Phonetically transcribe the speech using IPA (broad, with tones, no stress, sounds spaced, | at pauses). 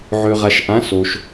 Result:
ʕ ø˨ ʁ a˨ ʃ ʔ ã˨˦ s o˨ ʃ